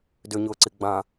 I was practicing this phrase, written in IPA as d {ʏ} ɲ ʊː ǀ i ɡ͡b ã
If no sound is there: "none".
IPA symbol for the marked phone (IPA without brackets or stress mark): ʏ